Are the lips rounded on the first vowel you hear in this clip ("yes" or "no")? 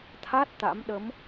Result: no